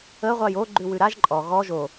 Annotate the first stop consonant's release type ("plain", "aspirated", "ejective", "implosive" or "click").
click